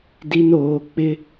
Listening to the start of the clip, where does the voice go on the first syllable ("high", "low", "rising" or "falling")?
high